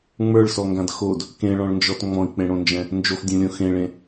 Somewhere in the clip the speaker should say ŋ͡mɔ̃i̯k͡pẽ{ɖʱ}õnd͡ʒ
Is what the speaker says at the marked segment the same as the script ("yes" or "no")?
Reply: no